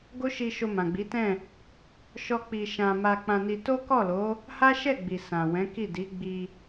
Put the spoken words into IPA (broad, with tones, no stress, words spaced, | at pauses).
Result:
ɡo˦ʃi˧ ʃo˧mã˨ɡ͡bi˨˦tɛ̃˦˨ | ʃɔ˦ k͡pi˧ ʃã˧ ma˧ k͡pã˧ni˧ to˦kɔ˦˨lo˨˦ | ha˦ʃɛ˦˨ɡ͡bi˨ sã˨wɛ̃˨˦ki˦˨ di˨˦ ɡ͡bi˧